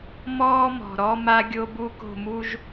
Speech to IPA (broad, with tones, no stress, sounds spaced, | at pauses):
m ɔː˦ m ɔ̤˨ ɾ ɔ˦ m a˦ ɡʲ o˦ b u˦ k o̤˦˨ m u˦ ʒ